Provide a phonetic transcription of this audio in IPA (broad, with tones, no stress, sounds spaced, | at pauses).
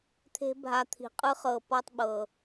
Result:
t̪ʰ e̤˦ bʱ a˧ t̪ʰ i̤˨ qʼ ɯ˧ χ ɤ˨ p ɔ˦ tˤ ɓ ɤ˨